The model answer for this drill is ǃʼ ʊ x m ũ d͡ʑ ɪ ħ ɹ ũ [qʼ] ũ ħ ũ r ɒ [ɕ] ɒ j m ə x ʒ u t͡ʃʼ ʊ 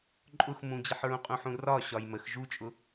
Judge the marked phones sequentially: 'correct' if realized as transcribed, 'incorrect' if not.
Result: correct, correct

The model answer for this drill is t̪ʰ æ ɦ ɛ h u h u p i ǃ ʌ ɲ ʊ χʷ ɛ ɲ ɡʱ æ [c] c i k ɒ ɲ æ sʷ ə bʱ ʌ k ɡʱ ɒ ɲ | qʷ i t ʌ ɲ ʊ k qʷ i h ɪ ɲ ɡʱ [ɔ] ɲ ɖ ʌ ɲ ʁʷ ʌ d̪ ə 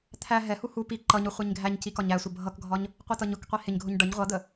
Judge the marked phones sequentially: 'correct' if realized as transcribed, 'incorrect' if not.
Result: incorrect, incorrect

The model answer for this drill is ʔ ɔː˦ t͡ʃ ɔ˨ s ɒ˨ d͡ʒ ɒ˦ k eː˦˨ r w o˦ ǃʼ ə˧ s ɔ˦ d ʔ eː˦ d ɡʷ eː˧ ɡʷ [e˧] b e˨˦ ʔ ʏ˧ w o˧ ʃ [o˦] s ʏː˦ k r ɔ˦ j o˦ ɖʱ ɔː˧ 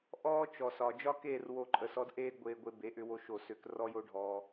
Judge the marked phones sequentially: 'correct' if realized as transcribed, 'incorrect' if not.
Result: correct, incorrect

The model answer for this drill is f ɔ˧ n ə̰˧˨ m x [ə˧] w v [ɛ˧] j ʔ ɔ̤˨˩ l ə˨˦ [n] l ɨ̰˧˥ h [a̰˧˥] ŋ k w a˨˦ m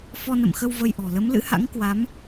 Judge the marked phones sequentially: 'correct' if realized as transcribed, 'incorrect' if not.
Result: correct, incorrect, incorrect, correct

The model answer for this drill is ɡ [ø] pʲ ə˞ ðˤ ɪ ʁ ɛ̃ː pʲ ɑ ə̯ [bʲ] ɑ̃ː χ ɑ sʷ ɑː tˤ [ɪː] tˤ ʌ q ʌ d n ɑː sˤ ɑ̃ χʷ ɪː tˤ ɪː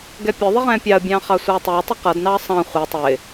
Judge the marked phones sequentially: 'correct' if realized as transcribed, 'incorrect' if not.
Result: incorrect, correct, correct

